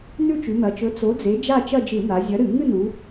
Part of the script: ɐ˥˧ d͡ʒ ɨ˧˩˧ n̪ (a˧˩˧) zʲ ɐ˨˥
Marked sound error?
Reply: yes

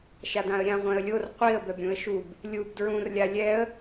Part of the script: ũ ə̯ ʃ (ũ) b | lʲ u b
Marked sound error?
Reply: yes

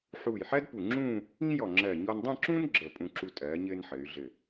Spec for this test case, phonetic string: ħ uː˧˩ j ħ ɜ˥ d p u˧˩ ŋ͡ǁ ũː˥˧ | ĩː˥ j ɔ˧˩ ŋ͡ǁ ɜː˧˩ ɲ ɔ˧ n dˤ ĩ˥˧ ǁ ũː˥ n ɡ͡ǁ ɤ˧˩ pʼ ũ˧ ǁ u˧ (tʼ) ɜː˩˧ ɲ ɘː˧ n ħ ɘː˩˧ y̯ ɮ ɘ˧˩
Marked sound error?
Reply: no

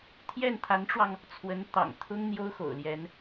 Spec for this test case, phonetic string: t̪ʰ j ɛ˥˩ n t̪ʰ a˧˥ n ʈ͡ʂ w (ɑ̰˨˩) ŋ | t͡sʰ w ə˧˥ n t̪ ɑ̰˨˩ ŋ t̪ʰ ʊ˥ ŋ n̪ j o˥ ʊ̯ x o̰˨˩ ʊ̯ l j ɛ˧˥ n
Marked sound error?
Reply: yes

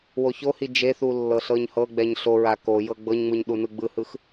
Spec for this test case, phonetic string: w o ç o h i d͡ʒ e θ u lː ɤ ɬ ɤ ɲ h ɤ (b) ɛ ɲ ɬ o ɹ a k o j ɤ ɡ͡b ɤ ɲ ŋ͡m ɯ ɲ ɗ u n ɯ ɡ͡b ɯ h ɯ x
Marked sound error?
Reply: yes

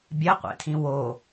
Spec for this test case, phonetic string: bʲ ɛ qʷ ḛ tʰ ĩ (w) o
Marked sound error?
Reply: no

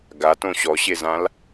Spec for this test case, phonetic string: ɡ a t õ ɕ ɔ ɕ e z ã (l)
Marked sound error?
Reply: no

